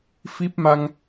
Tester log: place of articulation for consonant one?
labial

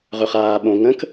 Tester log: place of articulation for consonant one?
uvular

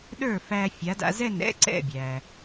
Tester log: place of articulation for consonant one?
alveolar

